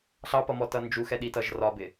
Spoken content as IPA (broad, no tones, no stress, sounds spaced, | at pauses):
ɬ ɑ p ʌ m ɔ t ʌ n d͡ʒ u x ɛ ɗ i t ʌ ʒ r ɒ b ɪ